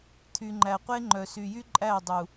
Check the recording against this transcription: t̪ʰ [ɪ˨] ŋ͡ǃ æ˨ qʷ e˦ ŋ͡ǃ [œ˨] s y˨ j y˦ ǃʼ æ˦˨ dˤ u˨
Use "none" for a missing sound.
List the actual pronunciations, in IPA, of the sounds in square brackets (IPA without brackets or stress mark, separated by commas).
y˨, œ˨